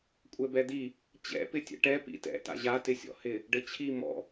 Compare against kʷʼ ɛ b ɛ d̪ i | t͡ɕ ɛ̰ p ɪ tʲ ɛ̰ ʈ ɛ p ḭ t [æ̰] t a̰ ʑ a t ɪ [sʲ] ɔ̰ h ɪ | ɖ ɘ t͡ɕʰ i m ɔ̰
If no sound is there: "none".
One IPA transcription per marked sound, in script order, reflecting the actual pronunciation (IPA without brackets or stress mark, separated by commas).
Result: ɛ̰, sʲ